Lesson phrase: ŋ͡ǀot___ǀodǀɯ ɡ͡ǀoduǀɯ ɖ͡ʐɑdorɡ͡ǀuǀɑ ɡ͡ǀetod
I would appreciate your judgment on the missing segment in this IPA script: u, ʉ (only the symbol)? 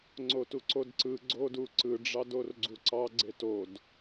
u